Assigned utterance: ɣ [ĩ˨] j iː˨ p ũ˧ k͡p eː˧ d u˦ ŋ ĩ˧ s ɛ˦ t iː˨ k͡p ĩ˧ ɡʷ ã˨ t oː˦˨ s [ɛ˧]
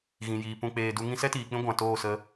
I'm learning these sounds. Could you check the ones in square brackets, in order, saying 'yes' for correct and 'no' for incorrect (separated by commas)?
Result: yes, no